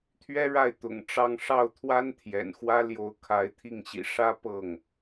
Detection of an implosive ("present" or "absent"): absent